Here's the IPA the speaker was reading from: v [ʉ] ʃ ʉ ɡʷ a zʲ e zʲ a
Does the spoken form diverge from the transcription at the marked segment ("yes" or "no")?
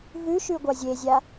no